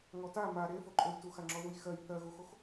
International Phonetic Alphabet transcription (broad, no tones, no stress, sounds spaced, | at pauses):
ŋ ɔ t a m a ɾ e f o ǃʼ o j t u x a ŋ͡ǁ ɔ ð u j x ɜ j θ ɜ ɣ u x o x